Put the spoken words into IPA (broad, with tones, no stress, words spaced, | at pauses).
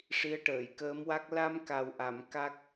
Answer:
ʂi˧˥ə̯ʈəː˨˩˨jkəː˧˥mwa˦˥k̚ la˧m ka˨˩wʔa˨˩˨m ka˦˥k̚